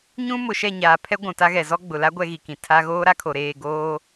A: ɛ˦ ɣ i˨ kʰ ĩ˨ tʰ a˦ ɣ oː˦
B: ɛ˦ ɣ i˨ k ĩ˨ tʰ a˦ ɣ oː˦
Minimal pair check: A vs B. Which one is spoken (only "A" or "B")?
B